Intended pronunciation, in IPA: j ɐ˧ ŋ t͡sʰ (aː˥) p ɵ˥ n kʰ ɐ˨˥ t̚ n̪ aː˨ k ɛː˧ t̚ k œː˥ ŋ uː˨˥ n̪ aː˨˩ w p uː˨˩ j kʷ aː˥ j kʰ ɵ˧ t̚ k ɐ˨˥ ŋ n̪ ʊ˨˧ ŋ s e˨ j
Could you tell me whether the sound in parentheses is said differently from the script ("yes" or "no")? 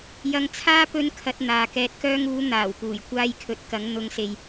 no